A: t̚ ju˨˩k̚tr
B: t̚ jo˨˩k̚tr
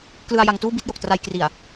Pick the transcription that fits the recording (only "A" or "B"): B